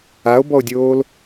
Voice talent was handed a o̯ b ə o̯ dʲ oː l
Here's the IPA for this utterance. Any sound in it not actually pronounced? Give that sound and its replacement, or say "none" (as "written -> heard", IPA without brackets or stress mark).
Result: ə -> ɔ